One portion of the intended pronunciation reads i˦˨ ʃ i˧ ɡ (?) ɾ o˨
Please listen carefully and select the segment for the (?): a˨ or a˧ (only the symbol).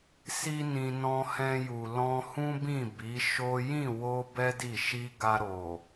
a˧